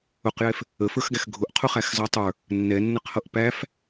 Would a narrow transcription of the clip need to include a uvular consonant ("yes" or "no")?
yes